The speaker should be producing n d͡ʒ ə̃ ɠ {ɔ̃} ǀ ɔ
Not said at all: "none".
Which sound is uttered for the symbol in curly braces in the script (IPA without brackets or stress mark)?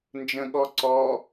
ɔ